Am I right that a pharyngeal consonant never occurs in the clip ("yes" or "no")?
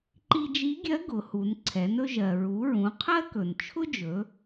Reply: yes